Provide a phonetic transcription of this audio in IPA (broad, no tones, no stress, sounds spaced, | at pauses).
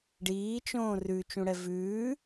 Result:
ɖ iː t͡ʃ õː r ʉ t͡ʃ ũ ɽ ɛ v ʉː